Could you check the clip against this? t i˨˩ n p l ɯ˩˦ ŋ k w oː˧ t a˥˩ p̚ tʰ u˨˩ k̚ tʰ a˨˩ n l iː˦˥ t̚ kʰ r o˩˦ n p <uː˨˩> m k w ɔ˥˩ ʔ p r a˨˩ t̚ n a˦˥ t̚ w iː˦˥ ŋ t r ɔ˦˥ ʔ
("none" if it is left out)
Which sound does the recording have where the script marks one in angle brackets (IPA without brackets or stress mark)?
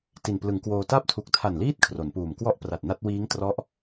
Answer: uː˨˩